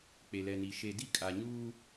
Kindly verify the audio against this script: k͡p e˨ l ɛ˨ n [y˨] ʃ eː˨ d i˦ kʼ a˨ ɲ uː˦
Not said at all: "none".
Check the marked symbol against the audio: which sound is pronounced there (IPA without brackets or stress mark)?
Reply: i˨